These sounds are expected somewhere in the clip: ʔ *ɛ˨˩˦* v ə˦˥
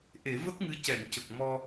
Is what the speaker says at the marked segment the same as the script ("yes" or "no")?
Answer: no